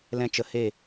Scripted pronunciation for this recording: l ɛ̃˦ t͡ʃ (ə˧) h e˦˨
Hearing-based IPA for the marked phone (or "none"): ə˧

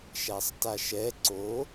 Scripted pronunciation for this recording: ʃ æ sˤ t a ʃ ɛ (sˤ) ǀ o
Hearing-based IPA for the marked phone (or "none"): none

